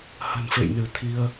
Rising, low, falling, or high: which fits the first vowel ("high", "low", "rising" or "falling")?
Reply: low